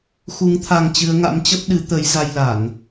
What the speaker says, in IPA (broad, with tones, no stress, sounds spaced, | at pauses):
x u˨˦ ŋ t̪ʰ a˧ ŋ t͡ɕ ɨ˨˦ ə̯ ŋ a̰˧˥ m t͡ɕ ə˦˥ p̚ ɗ ɨ˨˦ t̪ ə˨˦ j z a˧ j l a˧˩˨ n